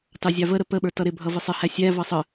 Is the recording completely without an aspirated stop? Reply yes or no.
yes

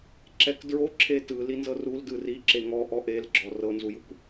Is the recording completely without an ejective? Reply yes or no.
yes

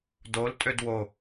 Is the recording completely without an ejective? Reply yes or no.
no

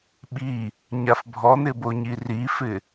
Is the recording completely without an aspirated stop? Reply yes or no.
yes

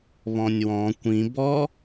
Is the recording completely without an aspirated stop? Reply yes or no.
yes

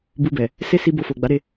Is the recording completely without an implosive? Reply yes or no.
yes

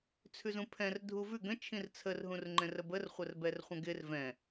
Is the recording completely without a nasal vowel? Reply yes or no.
no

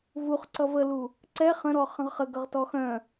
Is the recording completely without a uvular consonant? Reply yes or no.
no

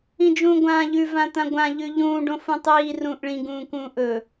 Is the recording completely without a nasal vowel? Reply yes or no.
no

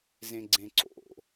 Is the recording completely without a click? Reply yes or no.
no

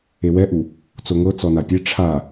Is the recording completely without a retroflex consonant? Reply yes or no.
no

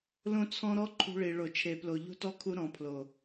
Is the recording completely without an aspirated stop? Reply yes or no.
no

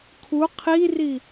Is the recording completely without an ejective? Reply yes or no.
yes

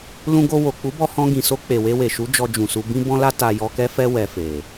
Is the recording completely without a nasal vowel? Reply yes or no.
no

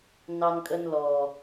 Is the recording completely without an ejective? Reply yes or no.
no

